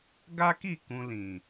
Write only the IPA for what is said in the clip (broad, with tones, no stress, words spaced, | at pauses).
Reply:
ɡa˦ki˦˨ kũ˧lĩ˨